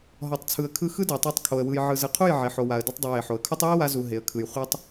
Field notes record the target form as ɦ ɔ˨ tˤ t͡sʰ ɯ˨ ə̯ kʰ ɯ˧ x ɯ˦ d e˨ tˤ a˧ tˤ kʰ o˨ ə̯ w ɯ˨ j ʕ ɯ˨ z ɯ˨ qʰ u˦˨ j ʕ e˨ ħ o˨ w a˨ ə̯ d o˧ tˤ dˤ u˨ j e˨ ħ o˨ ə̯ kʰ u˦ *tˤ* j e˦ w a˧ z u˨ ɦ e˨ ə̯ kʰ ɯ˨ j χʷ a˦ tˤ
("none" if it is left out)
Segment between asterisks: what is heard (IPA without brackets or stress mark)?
tˤ